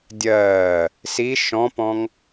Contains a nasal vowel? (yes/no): yes